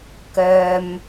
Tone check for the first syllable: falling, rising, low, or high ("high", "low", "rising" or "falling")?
low